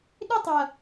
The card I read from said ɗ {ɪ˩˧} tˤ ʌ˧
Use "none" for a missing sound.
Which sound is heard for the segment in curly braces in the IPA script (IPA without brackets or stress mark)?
ɪ˥